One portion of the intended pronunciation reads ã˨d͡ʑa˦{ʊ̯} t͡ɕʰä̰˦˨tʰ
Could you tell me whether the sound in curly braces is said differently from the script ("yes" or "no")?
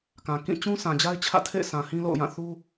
yes